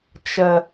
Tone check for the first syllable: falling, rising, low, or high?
high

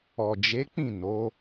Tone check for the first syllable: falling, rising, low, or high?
low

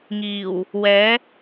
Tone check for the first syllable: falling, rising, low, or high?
low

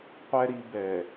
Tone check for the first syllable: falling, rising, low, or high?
low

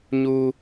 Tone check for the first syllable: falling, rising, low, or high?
high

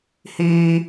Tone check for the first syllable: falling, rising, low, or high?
high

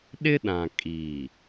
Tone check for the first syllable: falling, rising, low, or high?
high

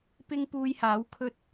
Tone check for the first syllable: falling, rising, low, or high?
high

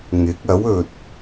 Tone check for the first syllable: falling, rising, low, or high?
rising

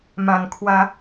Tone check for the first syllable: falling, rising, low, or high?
low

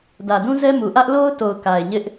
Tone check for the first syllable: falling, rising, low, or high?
low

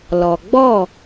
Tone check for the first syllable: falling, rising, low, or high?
low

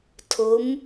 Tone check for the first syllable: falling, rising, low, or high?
rising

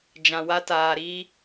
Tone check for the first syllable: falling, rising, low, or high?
low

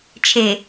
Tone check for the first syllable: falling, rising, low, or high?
low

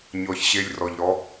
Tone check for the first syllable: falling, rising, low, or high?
low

